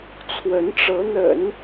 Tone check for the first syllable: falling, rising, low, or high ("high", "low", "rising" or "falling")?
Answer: rising